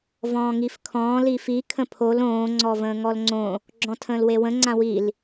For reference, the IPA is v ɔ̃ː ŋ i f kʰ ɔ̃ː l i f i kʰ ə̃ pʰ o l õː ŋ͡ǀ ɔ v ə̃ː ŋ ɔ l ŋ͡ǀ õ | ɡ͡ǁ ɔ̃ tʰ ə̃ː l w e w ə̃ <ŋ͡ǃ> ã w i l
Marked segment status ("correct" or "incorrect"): incorrect